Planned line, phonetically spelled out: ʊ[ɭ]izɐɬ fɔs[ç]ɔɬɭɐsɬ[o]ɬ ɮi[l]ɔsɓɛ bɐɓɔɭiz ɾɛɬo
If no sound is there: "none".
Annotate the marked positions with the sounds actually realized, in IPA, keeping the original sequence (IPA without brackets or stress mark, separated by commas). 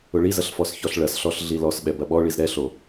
ɭ, ç, ɔ, l